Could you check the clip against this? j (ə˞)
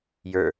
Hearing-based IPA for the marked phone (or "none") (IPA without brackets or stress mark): ə˞